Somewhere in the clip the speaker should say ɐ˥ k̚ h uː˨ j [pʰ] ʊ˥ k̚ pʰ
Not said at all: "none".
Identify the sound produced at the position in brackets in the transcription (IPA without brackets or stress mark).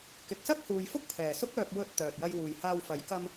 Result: f